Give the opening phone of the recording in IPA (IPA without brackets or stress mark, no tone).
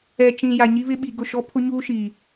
ɛ